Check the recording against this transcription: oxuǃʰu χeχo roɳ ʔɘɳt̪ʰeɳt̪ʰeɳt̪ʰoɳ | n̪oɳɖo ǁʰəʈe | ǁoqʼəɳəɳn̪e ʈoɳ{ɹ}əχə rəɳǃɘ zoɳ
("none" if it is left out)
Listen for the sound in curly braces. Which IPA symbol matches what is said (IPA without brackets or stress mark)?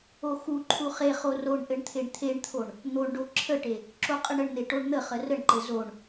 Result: n̪